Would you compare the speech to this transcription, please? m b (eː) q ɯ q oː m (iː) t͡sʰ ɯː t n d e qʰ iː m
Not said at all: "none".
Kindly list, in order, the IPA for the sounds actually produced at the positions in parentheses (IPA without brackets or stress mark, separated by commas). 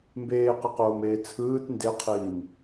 eː, eː